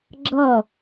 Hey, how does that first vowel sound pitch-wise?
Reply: falling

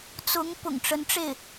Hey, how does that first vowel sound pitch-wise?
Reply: rising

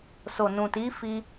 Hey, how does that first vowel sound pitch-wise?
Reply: low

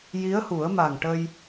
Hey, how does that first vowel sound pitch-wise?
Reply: rising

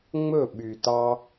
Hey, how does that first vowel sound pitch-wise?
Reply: falling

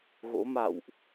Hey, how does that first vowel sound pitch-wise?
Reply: rising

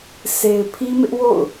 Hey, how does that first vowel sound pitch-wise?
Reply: low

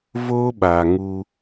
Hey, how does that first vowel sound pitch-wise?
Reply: high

